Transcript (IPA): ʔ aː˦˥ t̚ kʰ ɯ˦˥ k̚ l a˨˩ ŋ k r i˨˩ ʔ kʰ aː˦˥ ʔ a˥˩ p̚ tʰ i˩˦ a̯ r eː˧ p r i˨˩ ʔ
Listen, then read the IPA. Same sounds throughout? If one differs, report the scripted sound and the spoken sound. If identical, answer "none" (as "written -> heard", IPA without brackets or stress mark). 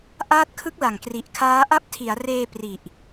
none